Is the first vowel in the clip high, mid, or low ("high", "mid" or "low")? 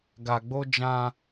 low